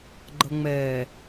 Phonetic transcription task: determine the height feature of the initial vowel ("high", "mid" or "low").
mid